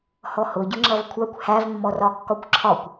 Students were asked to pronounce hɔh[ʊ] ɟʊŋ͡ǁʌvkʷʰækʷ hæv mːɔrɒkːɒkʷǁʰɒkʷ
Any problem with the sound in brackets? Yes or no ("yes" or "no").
no